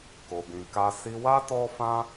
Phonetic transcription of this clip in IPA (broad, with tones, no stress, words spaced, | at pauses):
ko˧bĩ˧ka˦ si˧wa˦ tɔ˦fã˦